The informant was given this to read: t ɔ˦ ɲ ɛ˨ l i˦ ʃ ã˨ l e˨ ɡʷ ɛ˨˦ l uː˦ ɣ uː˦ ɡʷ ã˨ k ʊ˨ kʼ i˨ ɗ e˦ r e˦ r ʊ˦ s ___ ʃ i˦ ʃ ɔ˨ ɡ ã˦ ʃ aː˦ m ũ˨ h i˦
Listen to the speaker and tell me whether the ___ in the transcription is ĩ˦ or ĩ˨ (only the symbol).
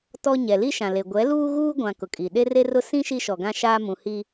ĩ˦